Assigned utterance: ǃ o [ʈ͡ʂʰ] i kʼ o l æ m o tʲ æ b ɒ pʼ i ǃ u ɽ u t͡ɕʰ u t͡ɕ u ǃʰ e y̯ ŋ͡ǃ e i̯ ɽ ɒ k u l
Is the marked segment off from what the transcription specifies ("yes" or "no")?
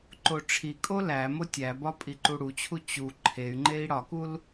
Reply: no